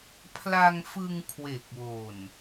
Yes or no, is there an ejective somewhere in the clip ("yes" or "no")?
no